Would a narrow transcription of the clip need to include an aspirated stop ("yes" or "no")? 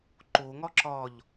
no